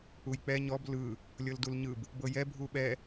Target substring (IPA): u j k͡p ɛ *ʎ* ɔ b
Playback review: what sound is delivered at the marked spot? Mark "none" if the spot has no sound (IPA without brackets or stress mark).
ɲ